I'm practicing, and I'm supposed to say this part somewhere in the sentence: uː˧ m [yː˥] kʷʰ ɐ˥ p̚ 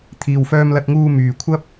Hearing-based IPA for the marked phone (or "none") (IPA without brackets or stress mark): yː˨